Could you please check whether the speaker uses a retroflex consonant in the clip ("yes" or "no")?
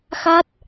no